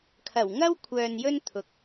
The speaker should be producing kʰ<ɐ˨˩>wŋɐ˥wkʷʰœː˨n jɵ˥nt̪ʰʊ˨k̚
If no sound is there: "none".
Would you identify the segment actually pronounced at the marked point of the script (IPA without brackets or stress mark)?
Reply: ɐ˨˩